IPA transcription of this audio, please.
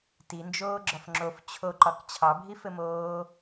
t i n d͡ʒ oː ɡ͡ǁ ɒ f ŋ͡ǁ o f t͡ɕʰ o ǃ ɒ k t͡ɕʰ ɑ bʱ i f ɘ m oː

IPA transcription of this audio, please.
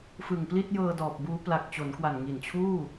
f ɯ˨˩ ŋ p l i˥˩ t̚ j ɤː˧ d ɔː˨˩ p̚ b uː˦˥ p l a˨˩ k̚ t͡ɕ o˩˦ n k w a˨˩ n ŋ i˨˩ n t͡ɕʰ uː˥˩

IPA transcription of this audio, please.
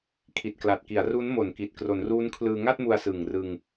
kʰ i˨˩ t̚ k l a˨˩ t̚ k i˩˦ a̯ r u˦˥ n m o˨˩ n k i˨˩ t̚ k r o˩˦ n r uː˦˥ n kʰ l ɯː˧ ŋ a˥˩ t̚ m u˧ a̯ s ɯ˨˩ ŋ r ɯ˧ ŋ

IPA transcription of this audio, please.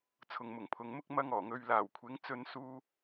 t͡sʰ ʊ˨ ŋ m ʊ˨˩ ŋ pʰ ʊ˨ ŋ m ʊ˥ k̚ m ɐ˥ ŋ ɔː˨˩ ŋ ɵ˧ ɥ l aː˨˩ w kʷʰ ɪ˨˥ ŋ t͡s ɵ˧ n s uː˥

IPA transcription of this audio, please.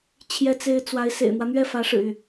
t͡ɕʰ j ɛ˥ t͡s e˥ ɪ̯ t͡s w a˧˥ ɪ̯ s ḛ˨˩ ɪ̯ n̪ w ä˦ n̪ ɥ ɛ˥˩ f ä˧˥ ʂ ɻ̩˨˩ y˥˩

